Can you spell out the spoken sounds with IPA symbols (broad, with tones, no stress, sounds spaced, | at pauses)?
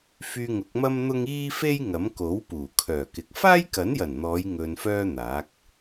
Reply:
f yː˧ ŋ ʊ˨˥ k̚ m ɐ˥ m n̪ ʊ˥ ŋ iː˥ f e˥ j ŋ ɐ˨˥ m k o˨˥ w p uː˨˩ kʰ œː˨˩ k ɪ˨ k̚ f aː˥ j k ɐ˨˥ n j ɐ˨˩ n n̪ ɔː˨˧ j ŋ ɵ˧ n f œː˥ n̪ aː˨˥ k̚